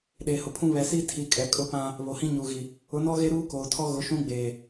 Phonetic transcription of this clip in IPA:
ɗeː˨hʊ˨pʰũ˦ βɛ˨siː˦tʰi˨kʼɛ˨ kʼʊ˦pã˦ | βo˨hĩ˦ɲuː˨ɣi˨ | ʊ˨˦nɔ˦ɣe˦ ɾuː˦koː˨tʰɔ˦ɣʊ˨˦ ʃũ˦ɡ͡beː˨

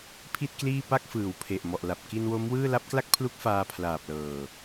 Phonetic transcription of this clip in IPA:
pʰi˥˩t̚kliː˥˩ pa˥˩k̚fɯː˩˦wpʰe˨˩ʔmɔ˨˩ʔ la˨˩p̚ki˧nwo˦˥mwɯː˥˩ la˦˥p̚kla˥˩k̚pʰlu˦˥k̚ faː˧ pʰlaː˨˩p̚lɤː˨˩

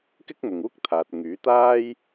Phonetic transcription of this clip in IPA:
kɪ˥k̚mʊ˨ŋ uː˥k̚t̪ʰaː˨t̚ŋyː˨˥t̪aː˥j

